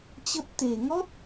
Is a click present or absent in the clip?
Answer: absent